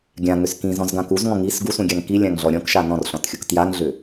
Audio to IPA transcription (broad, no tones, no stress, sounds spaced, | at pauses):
ɡʲ ã ŋ ʏ s k ĩ z ɔ̃ z ɡ ã k u z ŋ ɔ̃ ŋ i s ɡ u s ũ ɡʲ a ŋ k i lʲ ã ŋ ɮ ɔ ɾʲ ɔ̃ k ʃ a n ɔ̃ r ɬ ɔ̃ t xʲ u k t j a ŋ ɮ ʏ